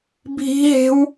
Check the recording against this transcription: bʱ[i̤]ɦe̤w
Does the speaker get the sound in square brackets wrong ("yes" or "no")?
no